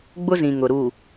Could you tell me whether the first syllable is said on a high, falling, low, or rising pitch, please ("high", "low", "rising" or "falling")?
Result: high